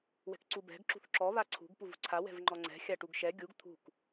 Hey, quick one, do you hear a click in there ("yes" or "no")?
yes